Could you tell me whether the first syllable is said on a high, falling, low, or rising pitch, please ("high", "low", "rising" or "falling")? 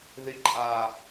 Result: high